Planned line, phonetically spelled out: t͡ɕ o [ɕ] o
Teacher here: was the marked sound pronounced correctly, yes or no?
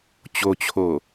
no